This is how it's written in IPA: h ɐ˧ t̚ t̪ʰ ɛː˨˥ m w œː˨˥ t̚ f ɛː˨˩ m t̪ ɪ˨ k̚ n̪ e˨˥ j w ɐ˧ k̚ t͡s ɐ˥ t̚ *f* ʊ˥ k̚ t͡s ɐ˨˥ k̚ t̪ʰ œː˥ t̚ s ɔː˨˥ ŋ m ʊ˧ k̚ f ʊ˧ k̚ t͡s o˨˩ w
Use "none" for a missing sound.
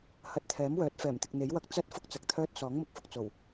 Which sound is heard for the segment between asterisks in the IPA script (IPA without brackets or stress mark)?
f